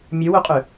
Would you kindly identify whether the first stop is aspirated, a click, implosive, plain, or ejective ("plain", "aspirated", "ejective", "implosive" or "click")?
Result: ejective